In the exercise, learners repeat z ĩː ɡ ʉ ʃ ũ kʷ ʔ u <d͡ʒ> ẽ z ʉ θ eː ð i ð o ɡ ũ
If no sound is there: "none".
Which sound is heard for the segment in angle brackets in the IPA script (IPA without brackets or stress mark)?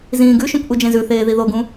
d͡ʒ